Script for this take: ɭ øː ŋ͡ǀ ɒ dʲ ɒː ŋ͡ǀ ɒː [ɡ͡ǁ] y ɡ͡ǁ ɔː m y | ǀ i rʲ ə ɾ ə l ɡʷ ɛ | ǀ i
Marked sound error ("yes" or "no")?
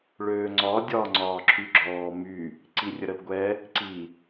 yes